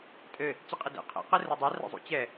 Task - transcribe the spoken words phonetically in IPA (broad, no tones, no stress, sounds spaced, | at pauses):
tʼ ɘ | t͡ɕ i qʼ i d ḛ qʰ ḛ q ɨ r a dˤ a r ɛ̰ zˤ ṵ t͡ɕ ɛ